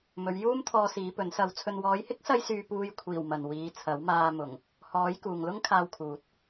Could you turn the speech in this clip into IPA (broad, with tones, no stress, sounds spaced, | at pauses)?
m ɵ˨˧ ɥ j uː˥ m t̪ʰ ɔː˧ s iː˨˧ p ɵ˨˥ n s ɐ˧ w t͡sʰ ɵ˨ n w ɔː˨˧ j h ɪ˥ k̚ s ɐ˧ j s yː˨ p uː˨ j kʷʰ iː˨˩ w m ɐ˨ n w iː˨˧ t͡sʰ ɐ˨˥ w m aː˧ m ʊ˨˩ ŋ | h ɔː˨˥ j k uː˨ ŋ l ʊ˥ ŋ kʰ aː˧ w kʰ uː˨ t̚